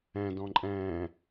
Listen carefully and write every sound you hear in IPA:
ɛ̃ d ɔ̃ ǃʼ ɛ̃ː

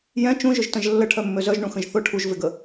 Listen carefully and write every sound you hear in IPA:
j ɛ̃ t͡ʃ ũ ʒ ʊ ʒ t ə̃ ʒ lː ə ʈʰ œ mː ø z œ ʒ ɳ ũ x ə̃ ʒ θ ʊ ʈʰ u ʒ v ɪ ɡ ə

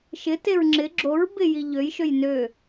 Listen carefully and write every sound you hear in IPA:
ʃ ɪ t e ɹ ŋ͡ǁ ɪ ɡ͡ǁ o ɹ b ɪ j i ʎ ø j ʃ ø j n ø

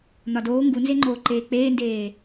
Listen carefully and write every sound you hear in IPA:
n̪ ɒ d oː ŋ ɡ u n z e ŋ͡ǃ oː ǃ eː k͡p eː n d eː

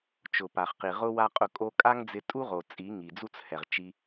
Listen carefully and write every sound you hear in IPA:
t͡ʃ ʊ˨ p a˨ χ q i˨ ʁ ʊ˧ w a˦ qʼ ʊ˧ kʼ o˦ kʼ a˦ ŋ d͡z ɪ˧ tʼ u˦ ʁ o˨ t͡sʼ i˨˦ ŋ i˨ d͡z u˦ t͡s h ɛ˨ ʁ t͡ʃ i˧

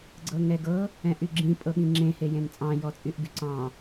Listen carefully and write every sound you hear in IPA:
ɡ͡ǀ ɤ ŋ ɛ ɡ ɤ | ɛ̃ ʔ y ɡ͡ǁ ĩ pʼ ɤ ɠ ĩ ŋ͡ǁ ẽ h e j ẽ n t͡sʼ ɑ̃ j ɔ t͡sʼ y ʔ ɡ y ǀ ɑ̃

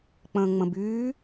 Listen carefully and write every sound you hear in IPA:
k͡p ə̃ː ŋ͡m ə̃ b yː

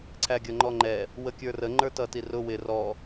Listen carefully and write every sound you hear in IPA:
ǀʰ æ ɡʲ ʌ ŋ͡ǃ ɔ ŋ͡ǃ ɛ | w ə kʲ ə˞ r ə ŋ͡ǃ ə˞ t ʌ t i r ʊ w ɪ r ɔ

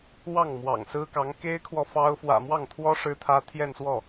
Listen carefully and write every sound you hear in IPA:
w ɑ˥˩ ŋ m w ɑ̰˨˩ ŋ s ɹ̩˥ k ɑ˧˥ ŋ k e˥ ɪ̯ kʰ w ɔ˨ f ɑ˥ ʊ̯ f w ä̰˨˩ m w ɑ˥˩ ŋ t̪ʰ w ɔ˥ ʂ ɻ̩˥ t̪ʰ ä˥ t̪ʰ j ɛ˥˧ n s w ɔ˥˩

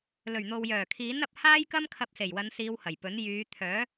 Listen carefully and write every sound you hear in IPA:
l ɵ˨˩ ɥ n̪ o˨ w j œː˨˩ kʰ iː˨˥ n ɐ˨ p̚ h aː˥ j k ɐ˥ m kʰ ɐ˧ p̚ s e˨˩ j w ɐ˨˧ n s iː˨˧ w h ɐ˨˩ j p ɵ˨˥ n j yː˨˧ t̪ʰ œː˨˥

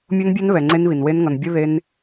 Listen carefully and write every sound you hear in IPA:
mʲ o˦˥ n bʲ a˦˥ n β ɛ˩ ŋ͡ǀ e˦˥ n β i˩ n w e˦˥ n ŋ ʌ˩ n bʲ ɯ˦˥ ð e˦˥ n

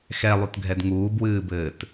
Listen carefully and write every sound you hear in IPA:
x ɛ lˠ u t ɡʱ ɛ d ŋ uː b w ɨː b ɘː t

